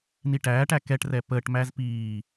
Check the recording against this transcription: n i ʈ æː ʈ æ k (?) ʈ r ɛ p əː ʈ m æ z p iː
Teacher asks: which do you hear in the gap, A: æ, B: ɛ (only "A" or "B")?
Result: B